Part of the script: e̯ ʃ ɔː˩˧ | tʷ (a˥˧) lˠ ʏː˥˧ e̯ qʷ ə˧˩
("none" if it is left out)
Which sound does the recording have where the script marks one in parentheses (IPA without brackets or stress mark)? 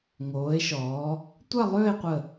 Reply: a˥˧